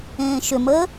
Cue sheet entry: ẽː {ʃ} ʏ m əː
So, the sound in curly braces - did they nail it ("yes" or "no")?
yes